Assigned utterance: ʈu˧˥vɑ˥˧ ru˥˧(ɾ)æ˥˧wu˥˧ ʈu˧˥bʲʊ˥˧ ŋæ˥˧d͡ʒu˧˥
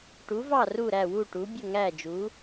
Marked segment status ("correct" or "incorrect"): correct